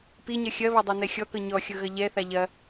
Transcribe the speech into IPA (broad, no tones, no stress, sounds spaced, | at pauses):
p i ɲ ɐ xʲ ɐ β ɐ dˤ a n ɛ xʲ ɔ k ɤ ɲ ɔ xʲ ɤ ɣ ɐ ʎ ɛ θ a ʎ ɐ